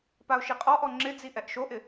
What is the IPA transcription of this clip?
p a ʊ̯ ʃ i qʼ ɔ ʔ ɔ ŋ͡ǁ ɪ d͡z i ʔ ɛ ʔ ʃ o ʔ ɪ

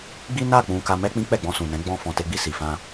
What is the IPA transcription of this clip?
ɡ͡b i˦ n a˦˨ k͡p ũ˧ k a˧ m ɛ˦ k͡p ĩ˦ k͡p ɛ˦˨ ɡ͡b ɔ̃˧ s ũ˨ n ɛ̃˨˦ ɡ͡b ɔ̃˧ f ɔ̃˨ t e˧ ɡ͡b i˧ s i˨ f ã˧

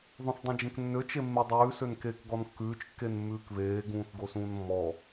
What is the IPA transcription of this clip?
ðˤ õ θ dˤ ẽ d͡ʒ ẽ k nː ø t͡ʃ e mː e dˤ ʉː s ø n k eː k ɡ ɔ n kː ʉː t͡ʃ kː e n mː ʉː k β eː ɡ ũː θ ɡ o s ũː n mː ɔ

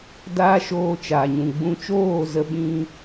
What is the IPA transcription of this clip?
d aː˧ ʃ oː˧ t͡ʃ aː˨ ɲ ũ˨ ɡ͡b ũ˧ t͡ʃ oː˦˨ z ə˧ ɓ ĩ˧

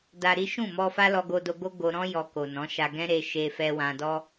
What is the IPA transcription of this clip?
d a˧ ɾ i˦ ʃ ũ˦˨ m ɔ˧ f a˦ l ɔ˧ ɡ o˧ d o˧ ɡ o˦ ɡ o˧ ɾ ɔ̃˦ j ɔ˧ k o˨ n ɔ̃˨˦ ʃ a˧ ɡ ɛ̃˦ ɾ e˧ ʃ e˧ f ɛ˧ w ã˧ d ɔ˦

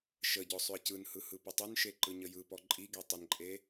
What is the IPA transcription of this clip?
ʃ ə ɟ ɔ sˤ ʏ ə̯ c ɯ n h ɯ h ɯ p ə tˤ ʏ n ʃ e ǃ ɯ ɲ ə j ɯ p ɔ ǃʼ i ɡ e tˤ ə n ǃʼ e

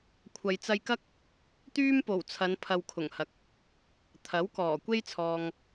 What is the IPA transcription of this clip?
kʷʰ ɐ˨ j t͡s ɐ˧ j k ɐ˥ k̚ | t̪ yː˥ m p o˨˩ w t͡sʰ ɐ˨˧ n pʰ ɐ˨ w kʰ ʊ˨˩ ŋ h ɐ˨ k̚ | t̪ʰ ɐ˨˥ w k ɔː˨˩ kʷ e˥ j t͡sʰ ɔː˨ ŋ

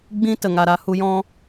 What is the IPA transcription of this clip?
ɡ͡b ĩ˦ t ə˨ ŋ a˨ ɾ a˧ h u˧ j ɔ̃˦

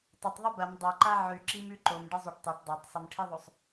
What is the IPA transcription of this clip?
tˤ ɐ tˤ ðˤ ʉ b ɐ m dˤ a ǃ a ʕ ʉ ǁ i m ʉ ǃ o m ɖ ɨ zˤ u ʈ tˤ o ʈ dˤ a tˤ sˤ ɐ m ʈʰ i ðˤ o sˤ

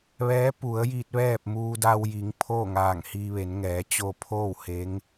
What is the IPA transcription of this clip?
ʋ ɛː˧˥ p u˩˧ ə̯ j iː˧ t̚ ʋ ɛː˥˨ p̚ m uː˧ d a˧ w j i˩˧ ŋ pʰ oː˥˨ ŋ aː˧˩ ŋ h iː˧ ʋ e˩˧ n ŋ ɛː˩˧ t͡ɕ o˧ pʰ oː˥˨ w h e˧˥ ŋ

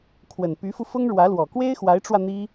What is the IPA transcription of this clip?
kʰ w ə˨˩ n p y˧˥ f u˧ f ʊ˥ ŋ ɻ w ä˧˥ l w ɔ˨˩ k w e˥ ɪ̯ x w a˧˥ ɪ̯ ʈ͡ʂ w ä˧ n̪ i˥

